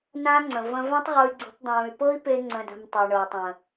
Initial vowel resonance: nasal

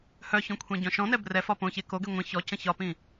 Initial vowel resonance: oral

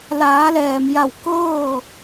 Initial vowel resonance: oral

